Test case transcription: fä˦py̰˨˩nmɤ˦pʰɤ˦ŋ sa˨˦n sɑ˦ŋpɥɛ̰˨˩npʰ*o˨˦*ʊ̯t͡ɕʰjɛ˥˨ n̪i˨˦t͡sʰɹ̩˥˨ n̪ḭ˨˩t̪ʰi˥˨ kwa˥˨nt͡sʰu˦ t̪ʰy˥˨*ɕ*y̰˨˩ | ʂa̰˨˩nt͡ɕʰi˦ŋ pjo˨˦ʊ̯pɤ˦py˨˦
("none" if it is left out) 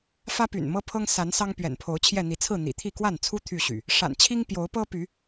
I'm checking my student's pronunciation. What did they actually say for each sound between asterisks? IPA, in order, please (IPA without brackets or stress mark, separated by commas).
o˨˦, ɕ